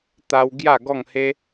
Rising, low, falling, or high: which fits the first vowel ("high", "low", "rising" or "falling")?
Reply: high